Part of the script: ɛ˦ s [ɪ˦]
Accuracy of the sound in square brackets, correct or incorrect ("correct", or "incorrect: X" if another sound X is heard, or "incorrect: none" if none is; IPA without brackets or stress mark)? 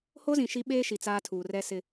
correct